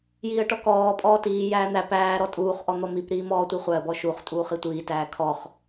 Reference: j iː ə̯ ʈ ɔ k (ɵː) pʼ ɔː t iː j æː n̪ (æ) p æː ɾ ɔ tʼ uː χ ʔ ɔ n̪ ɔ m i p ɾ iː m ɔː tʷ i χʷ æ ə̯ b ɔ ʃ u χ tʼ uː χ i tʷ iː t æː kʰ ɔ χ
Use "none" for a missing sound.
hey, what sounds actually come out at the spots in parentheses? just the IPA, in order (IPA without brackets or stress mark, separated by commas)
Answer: ɔː, æ